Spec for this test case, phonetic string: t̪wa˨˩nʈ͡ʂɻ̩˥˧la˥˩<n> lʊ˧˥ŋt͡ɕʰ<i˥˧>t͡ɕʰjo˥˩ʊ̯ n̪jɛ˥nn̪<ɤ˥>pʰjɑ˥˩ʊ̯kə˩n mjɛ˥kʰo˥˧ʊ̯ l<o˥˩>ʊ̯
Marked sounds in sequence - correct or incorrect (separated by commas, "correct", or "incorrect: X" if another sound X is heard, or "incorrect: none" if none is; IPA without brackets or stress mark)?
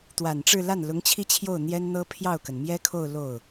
correct, correct, correct, correct